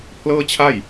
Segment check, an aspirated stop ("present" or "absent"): present